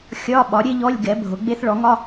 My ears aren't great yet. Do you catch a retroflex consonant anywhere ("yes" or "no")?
yes